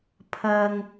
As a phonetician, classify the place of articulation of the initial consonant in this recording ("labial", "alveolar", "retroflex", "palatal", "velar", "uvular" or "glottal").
labial